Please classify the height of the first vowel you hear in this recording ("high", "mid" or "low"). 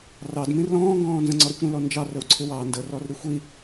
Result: low